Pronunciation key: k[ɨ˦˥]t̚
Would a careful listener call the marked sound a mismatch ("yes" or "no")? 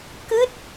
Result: no